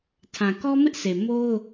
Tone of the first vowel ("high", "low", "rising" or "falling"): low